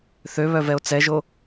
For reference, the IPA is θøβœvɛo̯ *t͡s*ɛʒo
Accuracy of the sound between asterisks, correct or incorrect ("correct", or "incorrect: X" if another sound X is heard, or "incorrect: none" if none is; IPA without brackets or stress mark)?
correct